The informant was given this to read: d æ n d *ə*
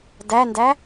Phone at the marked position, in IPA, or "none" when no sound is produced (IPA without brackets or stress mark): æ